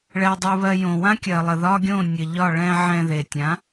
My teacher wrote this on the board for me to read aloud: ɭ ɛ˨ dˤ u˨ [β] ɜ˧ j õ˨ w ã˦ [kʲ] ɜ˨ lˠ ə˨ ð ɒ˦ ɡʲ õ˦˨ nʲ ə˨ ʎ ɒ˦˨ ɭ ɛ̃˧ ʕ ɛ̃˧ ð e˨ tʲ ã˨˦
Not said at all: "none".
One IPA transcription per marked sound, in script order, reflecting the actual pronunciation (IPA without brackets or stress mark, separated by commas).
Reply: β, kʲ